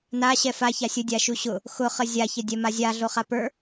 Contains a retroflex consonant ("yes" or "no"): no